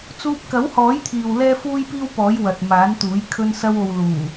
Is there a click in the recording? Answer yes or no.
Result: no